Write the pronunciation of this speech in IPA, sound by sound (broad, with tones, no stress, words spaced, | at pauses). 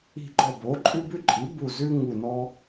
i̤˧˩ɡ͡ǃɔ˧˩bo˩˥ ǃʼʉ˦bʉ˦ǃʼi˩˥ bu˧˩ zʉ˦ ŋu˧˩nɔ˦